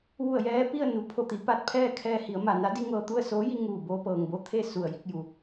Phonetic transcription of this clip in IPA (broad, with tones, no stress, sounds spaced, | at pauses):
ʋ u˧˩ ə̯ j ɛː˧ p i˥˨ ə̯ n u˩ pʰ o˧˩ t̪ i˩˧ p a˧˩ t̚ pʰ ɛː˥˨ kʰ ɛː˧ h i˩˧ ə̯ m a˩ n a˧˥ d i˧ ŋ ɤː˧ t̪ u˥˨ ə̯ s oː˧˥ j i˧ ŋ uː˧˩ b oː˧ p ɤː˩ ŋ b o˧ t̪ʰ e˥˨ s u˧˩ ə̯ j i˧ k̚ j u˩